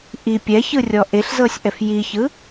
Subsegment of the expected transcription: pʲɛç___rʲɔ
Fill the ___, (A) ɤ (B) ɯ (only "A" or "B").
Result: B